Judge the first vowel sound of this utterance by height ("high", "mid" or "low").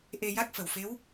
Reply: mid